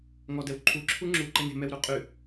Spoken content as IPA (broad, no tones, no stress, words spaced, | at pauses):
ŋɔdɛwǃʰu ǁʰuŋ͡ǁu ǃɛne̤ mɛwɾuqʼʉ